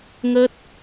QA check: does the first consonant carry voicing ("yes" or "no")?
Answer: yes